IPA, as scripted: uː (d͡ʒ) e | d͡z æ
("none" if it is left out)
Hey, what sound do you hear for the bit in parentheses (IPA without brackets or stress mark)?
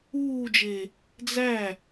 d͡ʒ